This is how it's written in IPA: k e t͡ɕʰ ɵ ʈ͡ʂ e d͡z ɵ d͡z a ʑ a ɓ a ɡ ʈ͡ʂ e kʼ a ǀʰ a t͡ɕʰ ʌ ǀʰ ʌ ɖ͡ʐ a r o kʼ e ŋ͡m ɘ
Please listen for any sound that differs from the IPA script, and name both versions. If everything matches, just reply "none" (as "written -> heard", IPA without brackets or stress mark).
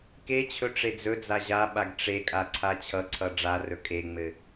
o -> ɵ